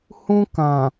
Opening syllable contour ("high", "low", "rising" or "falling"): high